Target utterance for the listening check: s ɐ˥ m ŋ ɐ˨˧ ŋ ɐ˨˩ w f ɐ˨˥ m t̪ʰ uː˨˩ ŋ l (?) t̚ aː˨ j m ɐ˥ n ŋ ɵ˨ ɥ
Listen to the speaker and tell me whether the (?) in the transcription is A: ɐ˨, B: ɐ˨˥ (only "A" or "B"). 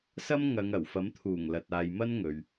A